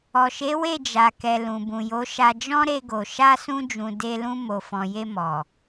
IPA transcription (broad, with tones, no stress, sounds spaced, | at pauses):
ɔ˨ ʃ e˨˦ w e˦˨ d͡ʒ a˨ k ɛ˨ l ũ˨ b ũ˨ j o˨˦ ʃ a˧ d͡ʒ ɔ̃˦ ɾ e˧ ɡ o˨ ʃ a˧ s ũ˧ d͡ʒ ũ˨ d e˧ l ũ˧ m o˨ f ɔ̃˨ j e˧ m ɔ˨